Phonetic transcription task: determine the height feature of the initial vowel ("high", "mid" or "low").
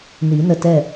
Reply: high